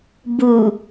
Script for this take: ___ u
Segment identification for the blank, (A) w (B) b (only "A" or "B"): B